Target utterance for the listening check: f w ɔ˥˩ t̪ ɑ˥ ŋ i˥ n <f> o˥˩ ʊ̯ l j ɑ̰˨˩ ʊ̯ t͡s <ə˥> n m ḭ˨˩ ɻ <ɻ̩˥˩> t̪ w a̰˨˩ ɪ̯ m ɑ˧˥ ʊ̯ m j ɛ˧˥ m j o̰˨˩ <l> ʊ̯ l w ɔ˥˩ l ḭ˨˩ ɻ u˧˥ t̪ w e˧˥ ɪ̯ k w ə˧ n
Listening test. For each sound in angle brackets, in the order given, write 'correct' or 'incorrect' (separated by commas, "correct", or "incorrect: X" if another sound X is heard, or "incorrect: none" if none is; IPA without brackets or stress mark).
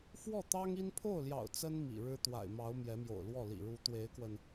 incorrect: pʰ, correct, incorrect: ɻ̩˥, incorrect: none